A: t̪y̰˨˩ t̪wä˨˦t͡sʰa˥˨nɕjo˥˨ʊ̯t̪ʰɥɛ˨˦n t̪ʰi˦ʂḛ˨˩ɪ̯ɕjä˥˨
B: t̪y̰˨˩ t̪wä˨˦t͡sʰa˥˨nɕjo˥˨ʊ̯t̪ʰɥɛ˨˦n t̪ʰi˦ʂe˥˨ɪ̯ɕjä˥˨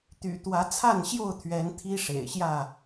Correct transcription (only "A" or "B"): A